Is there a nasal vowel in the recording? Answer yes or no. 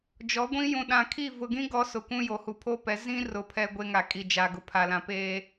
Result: yes